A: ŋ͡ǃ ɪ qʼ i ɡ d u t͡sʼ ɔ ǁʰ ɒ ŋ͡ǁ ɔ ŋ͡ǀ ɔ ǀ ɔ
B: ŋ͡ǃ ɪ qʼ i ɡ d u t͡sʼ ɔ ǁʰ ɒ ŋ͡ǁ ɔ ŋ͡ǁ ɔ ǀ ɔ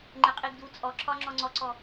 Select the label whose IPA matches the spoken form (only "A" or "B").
A